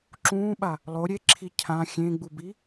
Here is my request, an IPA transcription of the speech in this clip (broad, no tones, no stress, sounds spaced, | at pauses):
ǁ ũː ɓ a | lˠ o ɾʲ e ǁʰ i cʰ ã xʲ ẽ ɡ͡b u b i